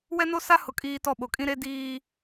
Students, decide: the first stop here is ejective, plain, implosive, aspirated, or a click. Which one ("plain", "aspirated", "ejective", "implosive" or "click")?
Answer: ejective